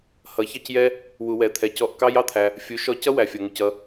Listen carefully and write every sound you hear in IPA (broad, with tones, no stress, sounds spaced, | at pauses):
h ʌ˨˦ ç ɑ˦ c j ɛ˦ | w u˧ w ɛ˧ t̪ʰ ɛ˧ c ɔ˦˨ ʔ k ɑ˦ j ɑ˦ t̪ʰ æ˧ | fʲ u˨˦ ʃ ɔ˧ c ʌ˦ w æ˨ fʲ ʌ˨ ŋ u˨ c ʌ˧